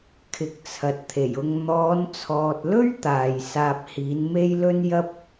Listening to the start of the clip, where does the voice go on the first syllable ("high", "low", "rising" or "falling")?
rising